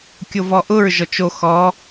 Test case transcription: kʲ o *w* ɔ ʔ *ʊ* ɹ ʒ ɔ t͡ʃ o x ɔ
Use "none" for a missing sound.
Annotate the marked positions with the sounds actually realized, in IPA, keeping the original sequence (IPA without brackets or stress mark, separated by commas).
v, ʊ